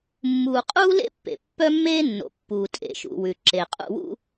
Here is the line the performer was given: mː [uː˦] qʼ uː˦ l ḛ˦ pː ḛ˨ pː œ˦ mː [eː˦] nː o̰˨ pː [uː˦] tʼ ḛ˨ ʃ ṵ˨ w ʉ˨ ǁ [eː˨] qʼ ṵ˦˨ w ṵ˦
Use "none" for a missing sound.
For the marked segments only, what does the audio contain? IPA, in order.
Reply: uː˨, eː˦, uː˨, e˨

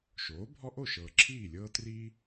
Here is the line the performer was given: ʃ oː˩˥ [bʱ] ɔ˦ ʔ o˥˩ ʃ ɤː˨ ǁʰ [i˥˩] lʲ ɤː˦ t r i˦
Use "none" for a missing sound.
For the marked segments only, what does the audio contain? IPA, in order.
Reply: bʱ, iː˥˩

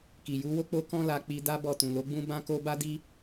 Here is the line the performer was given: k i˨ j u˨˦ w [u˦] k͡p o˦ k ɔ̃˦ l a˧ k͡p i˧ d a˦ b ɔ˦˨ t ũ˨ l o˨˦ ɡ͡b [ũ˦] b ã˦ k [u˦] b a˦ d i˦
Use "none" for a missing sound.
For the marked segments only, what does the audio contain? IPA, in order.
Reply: o˦, ũ˦, o˦

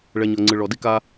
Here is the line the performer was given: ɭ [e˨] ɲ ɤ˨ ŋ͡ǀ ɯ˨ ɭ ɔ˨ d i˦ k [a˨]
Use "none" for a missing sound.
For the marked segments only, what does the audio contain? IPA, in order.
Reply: ɛ˨, a˦

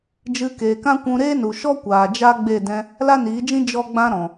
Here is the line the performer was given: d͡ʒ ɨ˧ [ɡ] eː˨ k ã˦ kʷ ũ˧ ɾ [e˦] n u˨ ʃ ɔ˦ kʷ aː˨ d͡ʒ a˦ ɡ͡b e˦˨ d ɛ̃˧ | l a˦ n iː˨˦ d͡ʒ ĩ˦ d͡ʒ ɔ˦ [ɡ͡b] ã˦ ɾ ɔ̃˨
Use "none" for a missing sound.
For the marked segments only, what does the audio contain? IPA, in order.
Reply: k, eː˦, ɡ͡b

